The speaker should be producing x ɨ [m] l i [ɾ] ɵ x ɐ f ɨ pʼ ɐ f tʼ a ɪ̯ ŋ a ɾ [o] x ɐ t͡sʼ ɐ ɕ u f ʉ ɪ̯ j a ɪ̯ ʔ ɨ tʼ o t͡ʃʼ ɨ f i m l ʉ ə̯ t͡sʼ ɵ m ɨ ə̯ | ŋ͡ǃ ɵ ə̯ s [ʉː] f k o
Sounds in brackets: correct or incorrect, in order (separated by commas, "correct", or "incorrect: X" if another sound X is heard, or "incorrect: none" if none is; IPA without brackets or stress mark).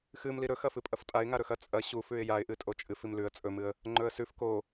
correct, correct, incorrect: ɵ, incorrect: ʉ